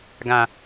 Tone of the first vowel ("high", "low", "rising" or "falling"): low